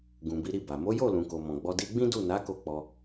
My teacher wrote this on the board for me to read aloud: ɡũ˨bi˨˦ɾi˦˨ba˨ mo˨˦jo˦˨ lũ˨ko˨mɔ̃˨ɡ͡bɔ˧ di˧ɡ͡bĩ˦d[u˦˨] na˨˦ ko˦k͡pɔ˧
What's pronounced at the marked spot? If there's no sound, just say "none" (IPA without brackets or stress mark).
u˦˨